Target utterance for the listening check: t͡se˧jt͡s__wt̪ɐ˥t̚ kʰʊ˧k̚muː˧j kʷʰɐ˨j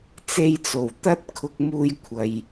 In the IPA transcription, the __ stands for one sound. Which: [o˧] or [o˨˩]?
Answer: o˨˩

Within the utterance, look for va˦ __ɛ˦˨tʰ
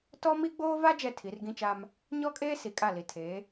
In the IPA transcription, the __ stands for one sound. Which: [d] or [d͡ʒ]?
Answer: d͡ʒ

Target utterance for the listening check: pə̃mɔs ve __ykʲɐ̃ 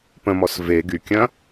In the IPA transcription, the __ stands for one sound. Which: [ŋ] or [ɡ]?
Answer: ɡ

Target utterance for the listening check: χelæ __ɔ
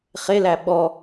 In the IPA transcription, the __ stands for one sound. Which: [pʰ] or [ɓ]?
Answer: ɓ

